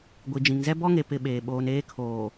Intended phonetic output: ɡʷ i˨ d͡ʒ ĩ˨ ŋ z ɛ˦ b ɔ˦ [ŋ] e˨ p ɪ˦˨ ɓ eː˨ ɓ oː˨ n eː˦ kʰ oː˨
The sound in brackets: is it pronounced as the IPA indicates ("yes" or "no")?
yes